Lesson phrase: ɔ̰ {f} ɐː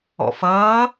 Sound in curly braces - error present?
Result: no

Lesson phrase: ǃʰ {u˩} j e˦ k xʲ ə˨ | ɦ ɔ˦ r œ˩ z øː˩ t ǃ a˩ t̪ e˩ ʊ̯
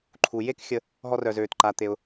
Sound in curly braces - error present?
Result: no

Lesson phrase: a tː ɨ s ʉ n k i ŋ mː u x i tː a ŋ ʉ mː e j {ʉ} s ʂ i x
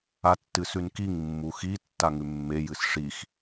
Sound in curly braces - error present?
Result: yes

